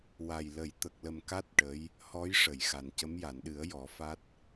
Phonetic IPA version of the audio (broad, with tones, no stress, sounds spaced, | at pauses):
w a˨˩ j l ə˨˩˦ j t̪ ə˨˩ k̚ l ə˨˩ m k a˦˥ t̚ ʈ ə˧˥ j | h ɔ˧˥ j ʂ ə˨˩˨ j x a˨˩ n c ə˧˥ m j a˨˩˨ n ɗ ɨ˨˩˦ ə̯ j ɔ˨˩˦ f a˦˥ t̚